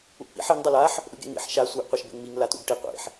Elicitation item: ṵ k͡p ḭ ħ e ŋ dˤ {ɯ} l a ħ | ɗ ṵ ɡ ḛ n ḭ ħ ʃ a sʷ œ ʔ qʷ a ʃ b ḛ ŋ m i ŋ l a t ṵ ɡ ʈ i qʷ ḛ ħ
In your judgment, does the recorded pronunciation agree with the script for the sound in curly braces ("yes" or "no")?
yes